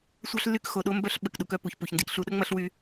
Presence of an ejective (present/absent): absent